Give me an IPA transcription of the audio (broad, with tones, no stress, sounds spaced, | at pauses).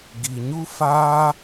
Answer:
ɡ i˨ ɲ u˦ f aː˦